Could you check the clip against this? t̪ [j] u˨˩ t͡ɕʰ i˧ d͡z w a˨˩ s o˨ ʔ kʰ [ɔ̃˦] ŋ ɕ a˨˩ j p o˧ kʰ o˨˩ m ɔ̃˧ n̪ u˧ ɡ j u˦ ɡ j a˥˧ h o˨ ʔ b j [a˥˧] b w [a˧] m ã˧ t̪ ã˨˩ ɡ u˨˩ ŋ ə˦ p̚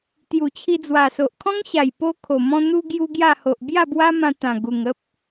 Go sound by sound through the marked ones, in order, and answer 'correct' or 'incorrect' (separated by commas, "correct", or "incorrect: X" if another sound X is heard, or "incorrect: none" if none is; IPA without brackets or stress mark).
correct, correct, correct, incorrect: a˦